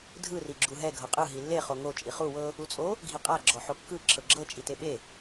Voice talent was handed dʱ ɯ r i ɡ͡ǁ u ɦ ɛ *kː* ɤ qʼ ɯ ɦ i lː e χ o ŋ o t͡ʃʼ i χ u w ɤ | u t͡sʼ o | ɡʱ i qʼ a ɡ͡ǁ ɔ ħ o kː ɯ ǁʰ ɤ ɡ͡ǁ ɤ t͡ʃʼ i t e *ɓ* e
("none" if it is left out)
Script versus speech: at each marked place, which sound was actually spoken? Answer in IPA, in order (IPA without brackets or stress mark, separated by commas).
ɡʱ, ɓ